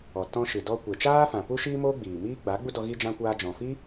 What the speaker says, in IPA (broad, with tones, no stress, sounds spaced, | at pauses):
ɔ˨ t ɔ̃˧ ʃ ɨ˨ d ɔ˧ kʷ e˨ t͡ʃ aː˦ f ã˨ p u˦ ʃ iː˦ m oː˦ ɡ͡b iː˨ m iː˦ ɡ͡b a˨˦ ɡ͡b u˦ d ɔ˧ ɣ i˧ d͡ʒ ã˧ kʷ aː˧ d͡ʒ ɔ̃˨ f i˦